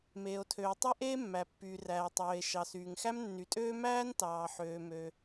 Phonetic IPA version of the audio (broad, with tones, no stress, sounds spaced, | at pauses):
m eː˩ o̯ tʰ øː˩ tˤ e˥ ʔ eː˥ mː æ˩ pː yː˩ r æː˩ tˤ øː˩ e̯ ʃ ɑ˩ s yː˩ ŋ x æ˥ m nː y˩ tʼ øː˥ m æː˥ n t ɑː˩ ħ øː˩ m ø˩